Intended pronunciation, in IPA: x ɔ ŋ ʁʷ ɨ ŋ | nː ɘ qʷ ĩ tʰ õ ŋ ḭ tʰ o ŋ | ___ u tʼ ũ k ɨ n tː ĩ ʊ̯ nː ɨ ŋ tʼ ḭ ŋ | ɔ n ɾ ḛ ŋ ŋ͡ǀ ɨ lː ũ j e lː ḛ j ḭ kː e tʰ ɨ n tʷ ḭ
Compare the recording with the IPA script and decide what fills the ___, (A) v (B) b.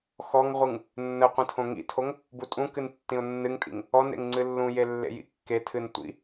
B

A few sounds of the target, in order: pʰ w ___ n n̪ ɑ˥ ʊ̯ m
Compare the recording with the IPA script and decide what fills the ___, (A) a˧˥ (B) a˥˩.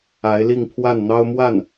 B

